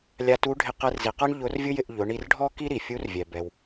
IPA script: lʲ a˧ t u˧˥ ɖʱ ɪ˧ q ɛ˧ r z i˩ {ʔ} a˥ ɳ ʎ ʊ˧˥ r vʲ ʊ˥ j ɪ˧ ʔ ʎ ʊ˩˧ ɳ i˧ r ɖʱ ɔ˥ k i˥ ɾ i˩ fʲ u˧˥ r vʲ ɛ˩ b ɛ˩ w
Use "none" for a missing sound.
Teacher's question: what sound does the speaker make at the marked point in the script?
q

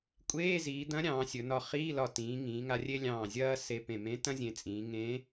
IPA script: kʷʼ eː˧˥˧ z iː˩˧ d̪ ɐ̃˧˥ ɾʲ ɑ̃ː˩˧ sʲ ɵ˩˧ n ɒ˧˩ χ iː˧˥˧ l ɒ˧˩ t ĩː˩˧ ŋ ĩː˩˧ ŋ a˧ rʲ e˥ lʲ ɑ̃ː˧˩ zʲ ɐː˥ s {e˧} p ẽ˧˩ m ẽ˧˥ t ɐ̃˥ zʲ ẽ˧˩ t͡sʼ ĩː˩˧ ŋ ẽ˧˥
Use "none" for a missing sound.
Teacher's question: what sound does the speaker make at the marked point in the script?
e˧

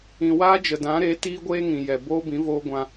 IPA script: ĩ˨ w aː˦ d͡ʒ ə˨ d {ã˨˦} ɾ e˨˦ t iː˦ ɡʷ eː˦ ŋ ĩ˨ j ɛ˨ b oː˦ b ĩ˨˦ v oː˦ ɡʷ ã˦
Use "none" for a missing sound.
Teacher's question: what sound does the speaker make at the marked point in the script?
ã˨˦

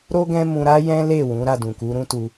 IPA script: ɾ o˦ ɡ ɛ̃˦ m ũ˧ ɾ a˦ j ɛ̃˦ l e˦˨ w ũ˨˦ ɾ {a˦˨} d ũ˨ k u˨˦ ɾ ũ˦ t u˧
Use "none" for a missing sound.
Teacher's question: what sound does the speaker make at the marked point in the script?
a˦˨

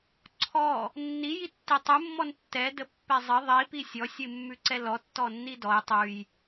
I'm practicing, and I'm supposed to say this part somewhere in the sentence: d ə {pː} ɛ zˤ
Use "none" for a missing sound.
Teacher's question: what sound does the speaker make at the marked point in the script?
pː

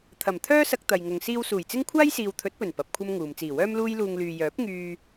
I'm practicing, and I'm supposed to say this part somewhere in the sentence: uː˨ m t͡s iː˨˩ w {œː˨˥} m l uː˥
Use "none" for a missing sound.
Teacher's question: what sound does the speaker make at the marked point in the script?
œː˥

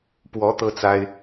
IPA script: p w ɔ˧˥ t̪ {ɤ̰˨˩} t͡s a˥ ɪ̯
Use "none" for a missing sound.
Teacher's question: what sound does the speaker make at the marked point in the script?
ɤ˥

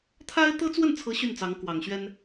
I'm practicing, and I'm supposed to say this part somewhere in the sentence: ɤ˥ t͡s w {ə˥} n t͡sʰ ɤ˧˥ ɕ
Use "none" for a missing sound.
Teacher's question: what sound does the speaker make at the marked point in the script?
ə˥˩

